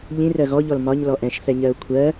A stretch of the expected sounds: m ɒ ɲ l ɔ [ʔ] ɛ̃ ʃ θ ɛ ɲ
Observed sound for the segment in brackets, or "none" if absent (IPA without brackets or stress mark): ʔ